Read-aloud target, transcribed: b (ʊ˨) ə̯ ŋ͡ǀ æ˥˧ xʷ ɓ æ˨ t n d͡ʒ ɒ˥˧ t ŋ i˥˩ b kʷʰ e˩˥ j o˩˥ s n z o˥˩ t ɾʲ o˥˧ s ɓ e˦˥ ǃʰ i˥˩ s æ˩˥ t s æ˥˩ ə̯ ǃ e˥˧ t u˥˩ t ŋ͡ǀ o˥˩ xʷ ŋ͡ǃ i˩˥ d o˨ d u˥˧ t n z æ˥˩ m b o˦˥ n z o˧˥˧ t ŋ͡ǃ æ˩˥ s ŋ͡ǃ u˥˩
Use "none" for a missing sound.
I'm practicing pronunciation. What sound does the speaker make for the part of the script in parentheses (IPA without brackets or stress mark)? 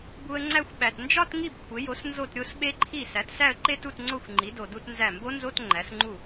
u˨